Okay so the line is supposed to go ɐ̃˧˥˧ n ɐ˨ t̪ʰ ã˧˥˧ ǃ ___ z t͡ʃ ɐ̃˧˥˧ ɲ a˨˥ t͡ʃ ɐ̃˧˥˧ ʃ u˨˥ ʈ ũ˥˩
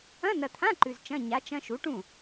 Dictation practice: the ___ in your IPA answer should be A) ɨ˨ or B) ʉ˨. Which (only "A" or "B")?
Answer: B